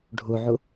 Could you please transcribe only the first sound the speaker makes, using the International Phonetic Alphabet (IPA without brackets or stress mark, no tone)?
ɖʱ